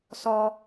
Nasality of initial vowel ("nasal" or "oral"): oral